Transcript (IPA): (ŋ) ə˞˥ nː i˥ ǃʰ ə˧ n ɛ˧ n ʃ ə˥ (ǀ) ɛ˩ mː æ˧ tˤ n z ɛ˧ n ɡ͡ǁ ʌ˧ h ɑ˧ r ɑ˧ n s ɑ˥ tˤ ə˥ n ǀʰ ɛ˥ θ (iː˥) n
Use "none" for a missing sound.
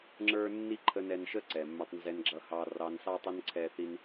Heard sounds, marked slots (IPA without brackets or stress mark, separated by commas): ŋ͡ǁ, ǀ, i˥